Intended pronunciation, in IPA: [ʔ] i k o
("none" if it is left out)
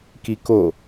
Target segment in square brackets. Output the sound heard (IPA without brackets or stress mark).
k